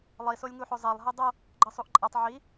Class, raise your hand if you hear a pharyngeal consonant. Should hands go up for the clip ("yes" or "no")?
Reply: yes